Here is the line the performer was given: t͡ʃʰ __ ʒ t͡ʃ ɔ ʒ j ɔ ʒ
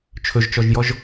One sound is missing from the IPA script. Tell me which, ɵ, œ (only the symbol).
ɵ